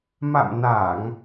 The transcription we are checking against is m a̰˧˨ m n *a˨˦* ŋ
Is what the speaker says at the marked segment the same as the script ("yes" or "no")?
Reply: no